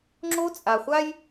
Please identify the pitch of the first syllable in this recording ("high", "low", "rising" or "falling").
high